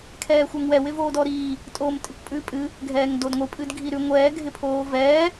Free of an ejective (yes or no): no